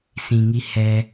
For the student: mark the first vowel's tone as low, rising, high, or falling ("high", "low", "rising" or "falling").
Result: low